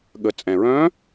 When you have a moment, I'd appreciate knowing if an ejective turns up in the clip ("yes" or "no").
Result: yes